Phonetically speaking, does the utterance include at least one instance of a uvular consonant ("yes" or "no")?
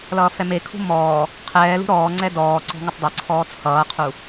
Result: yes